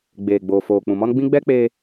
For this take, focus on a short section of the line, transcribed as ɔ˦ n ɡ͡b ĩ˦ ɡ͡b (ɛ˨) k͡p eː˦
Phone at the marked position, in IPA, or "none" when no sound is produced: ɛ˦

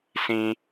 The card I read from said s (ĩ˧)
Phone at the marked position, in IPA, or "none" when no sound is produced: ĩ˧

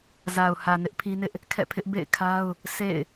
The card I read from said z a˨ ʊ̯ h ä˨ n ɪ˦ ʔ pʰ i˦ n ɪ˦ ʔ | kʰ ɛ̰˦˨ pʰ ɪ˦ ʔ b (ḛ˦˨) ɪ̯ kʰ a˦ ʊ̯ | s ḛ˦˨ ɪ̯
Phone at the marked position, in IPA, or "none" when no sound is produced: ḛ˦˨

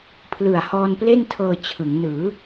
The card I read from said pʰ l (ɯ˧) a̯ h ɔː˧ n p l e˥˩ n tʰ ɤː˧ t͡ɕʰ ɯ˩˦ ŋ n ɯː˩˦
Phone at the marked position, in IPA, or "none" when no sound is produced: ɯ˨˩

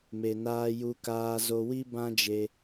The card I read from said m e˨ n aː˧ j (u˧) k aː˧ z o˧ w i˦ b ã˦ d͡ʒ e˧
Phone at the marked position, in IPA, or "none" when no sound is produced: u˧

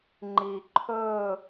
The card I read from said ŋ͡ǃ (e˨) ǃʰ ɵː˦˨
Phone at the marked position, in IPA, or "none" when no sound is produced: i˨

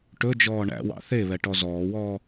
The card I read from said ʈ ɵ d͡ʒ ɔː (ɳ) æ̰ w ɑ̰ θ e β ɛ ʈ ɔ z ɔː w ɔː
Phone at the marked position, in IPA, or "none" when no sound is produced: ɳ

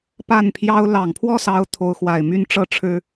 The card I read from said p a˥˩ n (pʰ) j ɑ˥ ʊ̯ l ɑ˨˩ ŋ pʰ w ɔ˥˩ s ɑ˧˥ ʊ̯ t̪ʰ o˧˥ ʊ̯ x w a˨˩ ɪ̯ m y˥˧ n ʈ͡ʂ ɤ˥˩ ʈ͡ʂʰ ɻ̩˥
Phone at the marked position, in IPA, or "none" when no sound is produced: pʰ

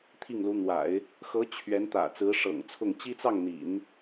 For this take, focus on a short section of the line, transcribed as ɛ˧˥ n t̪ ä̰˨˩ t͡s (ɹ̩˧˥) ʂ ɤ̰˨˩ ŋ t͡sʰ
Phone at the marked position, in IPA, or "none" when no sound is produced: ɹ̩˧˥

